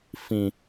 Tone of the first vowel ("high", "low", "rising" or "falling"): low